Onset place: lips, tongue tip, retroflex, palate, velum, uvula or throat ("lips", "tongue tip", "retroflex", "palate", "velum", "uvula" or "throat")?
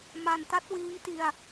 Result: lips